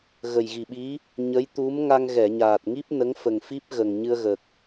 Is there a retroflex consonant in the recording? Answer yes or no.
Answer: no